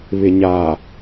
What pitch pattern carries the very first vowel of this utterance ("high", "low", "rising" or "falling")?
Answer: low